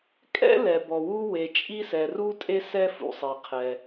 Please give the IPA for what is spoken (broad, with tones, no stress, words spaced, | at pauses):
kʼɛ̰˥ lɛ˩bɔ˩ wu˥we˩t͡ʃʼi˥sɛ˩ ru˥tʼe˥ sɛ˥fṵ˩sˤe˩ qʰɛ˩